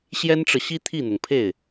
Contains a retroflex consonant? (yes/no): yes